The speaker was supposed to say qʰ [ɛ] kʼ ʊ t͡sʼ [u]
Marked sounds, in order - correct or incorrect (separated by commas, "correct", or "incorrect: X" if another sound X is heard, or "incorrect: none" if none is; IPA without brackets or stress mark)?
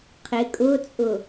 incorrect: ɪ, incorrect: ʊ